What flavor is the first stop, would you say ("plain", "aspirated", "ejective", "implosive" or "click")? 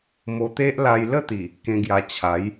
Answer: plain